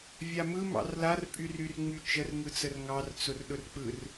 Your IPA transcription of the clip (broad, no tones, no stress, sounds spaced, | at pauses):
vʲ a m ɯ m ɑ̰ r l a r pʼ y r y r ŋ͡m y t͡ʃ ə r ŋ ɯ t͡s ə r ŋ ɑ r t͡s ʊ r ɗ ʊ r k͡p ɯ r